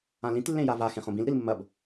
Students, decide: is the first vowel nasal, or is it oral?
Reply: nasal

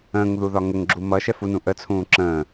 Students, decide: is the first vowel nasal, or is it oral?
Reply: nasal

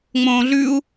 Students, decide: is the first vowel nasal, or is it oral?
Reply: nasal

